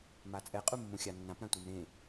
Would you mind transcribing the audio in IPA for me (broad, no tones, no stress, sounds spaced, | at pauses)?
m a t͡sʼ ɛ qʼ u mː ũ xʲ a nː ã p ɾ ã tʷ i m ɾ ẽ